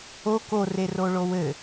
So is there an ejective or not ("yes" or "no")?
no